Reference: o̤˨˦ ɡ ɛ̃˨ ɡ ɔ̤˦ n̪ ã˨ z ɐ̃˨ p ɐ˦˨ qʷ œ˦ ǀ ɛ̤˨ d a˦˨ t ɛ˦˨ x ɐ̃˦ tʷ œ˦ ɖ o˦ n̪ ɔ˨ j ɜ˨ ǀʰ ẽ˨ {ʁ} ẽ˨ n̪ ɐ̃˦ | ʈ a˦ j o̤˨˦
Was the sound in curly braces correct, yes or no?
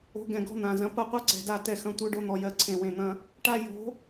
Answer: no